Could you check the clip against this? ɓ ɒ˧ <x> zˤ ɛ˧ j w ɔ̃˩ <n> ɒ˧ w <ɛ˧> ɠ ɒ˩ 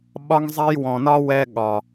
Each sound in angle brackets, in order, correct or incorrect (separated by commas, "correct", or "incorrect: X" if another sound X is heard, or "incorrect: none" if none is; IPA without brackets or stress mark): incorrect: ŋ, correct, correct